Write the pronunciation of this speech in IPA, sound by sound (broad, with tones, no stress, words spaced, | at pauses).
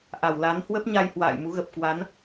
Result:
ʔa˧˩wla˨˦n hwə˦˥p̚ɲa˧j hwa̰ː˧˨jmu˨˦ɣə˨˩p̚ kwa˨˦n